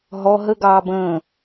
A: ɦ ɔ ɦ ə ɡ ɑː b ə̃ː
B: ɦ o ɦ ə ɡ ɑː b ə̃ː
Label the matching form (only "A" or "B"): A